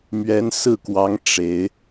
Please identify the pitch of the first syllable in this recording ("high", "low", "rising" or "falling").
rising